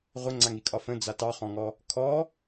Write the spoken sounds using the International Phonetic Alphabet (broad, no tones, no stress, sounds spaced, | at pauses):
ʁʷ ə ŋ͡ǀ a ŋ i kʼ ɒ f ə̃ d͡z a t ɑ χ ɔ̃ ŋ ɔ | kʰ ɔ